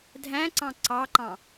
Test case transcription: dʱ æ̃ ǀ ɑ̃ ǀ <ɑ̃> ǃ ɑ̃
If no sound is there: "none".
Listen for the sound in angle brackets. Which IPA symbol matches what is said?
ɑ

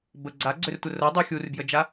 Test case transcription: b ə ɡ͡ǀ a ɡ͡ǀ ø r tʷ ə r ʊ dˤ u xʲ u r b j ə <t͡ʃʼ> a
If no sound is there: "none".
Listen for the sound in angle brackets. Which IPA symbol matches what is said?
d͡ʒ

